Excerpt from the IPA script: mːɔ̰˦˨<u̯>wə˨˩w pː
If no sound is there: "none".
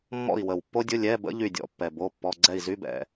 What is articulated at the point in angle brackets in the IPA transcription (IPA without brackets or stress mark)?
i̯